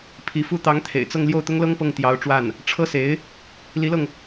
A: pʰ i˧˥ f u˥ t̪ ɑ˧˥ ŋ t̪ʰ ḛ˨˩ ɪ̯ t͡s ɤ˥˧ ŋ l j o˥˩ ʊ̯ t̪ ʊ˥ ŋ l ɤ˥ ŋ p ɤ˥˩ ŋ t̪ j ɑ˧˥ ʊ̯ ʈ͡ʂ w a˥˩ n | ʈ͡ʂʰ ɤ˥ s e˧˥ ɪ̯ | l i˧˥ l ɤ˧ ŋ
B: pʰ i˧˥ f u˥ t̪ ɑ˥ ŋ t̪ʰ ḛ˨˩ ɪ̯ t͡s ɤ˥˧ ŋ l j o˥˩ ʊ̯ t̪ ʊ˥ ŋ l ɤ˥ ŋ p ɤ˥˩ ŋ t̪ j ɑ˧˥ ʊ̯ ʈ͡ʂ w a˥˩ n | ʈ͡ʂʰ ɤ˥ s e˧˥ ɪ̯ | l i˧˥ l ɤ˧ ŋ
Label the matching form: A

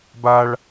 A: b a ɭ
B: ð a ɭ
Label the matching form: A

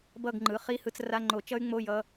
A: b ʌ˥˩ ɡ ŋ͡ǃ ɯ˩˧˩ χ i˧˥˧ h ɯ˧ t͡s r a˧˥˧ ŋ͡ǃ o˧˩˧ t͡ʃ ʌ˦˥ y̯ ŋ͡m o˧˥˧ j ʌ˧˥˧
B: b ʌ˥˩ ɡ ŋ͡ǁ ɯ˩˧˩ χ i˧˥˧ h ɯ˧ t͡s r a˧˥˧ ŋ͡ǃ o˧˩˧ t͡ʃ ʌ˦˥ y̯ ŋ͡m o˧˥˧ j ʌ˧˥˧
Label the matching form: A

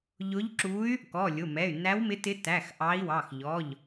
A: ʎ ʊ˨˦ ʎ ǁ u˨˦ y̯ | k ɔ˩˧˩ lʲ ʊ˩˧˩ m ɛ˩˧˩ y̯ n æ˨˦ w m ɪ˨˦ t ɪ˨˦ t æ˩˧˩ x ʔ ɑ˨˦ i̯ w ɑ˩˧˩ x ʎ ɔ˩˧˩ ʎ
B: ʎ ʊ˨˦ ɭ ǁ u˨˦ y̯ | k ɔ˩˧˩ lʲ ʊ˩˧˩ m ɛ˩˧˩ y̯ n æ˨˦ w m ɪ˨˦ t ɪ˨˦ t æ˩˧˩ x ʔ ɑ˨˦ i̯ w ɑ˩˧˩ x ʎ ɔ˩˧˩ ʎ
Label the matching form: A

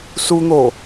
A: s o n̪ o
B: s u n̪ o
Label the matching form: B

